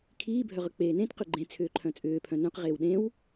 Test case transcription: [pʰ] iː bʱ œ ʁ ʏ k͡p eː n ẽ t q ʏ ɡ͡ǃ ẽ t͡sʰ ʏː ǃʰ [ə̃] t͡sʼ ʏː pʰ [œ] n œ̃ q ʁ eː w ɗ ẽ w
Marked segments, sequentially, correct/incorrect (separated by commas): incorrect, incorrect, incorrect